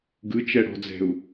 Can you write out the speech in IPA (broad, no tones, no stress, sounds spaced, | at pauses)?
ɡ ɯ t͡ʃ ɛ ɽ ɔ̤ d͡z ɛ̤ u̯